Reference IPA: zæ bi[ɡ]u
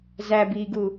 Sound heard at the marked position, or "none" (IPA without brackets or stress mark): ɡ